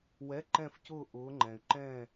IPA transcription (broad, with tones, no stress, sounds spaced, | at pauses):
w ɛ˧˥˧ ǃ ɛ̃˥˨ f c ʊː˥˨ ʔ ʊː˨˥ ŋ͡ǃ ɛ̃˩ y̯ ǃ ɛ̃ː˥˨